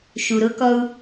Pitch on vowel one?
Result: low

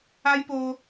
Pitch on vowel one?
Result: high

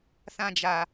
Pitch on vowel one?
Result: high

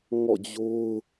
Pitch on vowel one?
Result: falling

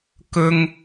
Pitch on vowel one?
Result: high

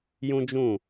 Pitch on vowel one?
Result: high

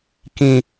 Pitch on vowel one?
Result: low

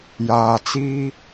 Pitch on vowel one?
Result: low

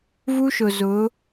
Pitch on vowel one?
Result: high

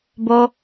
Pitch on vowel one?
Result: high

